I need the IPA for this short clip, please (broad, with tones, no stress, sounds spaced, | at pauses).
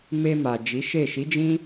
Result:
m e˧ m a˨ d͡ʒ i˨˦ ʃ e˦˨ ʃ i˨˦ d͡ʒ ĩ˦